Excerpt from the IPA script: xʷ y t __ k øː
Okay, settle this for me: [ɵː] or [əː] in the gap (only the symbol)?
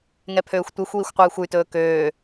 ɵː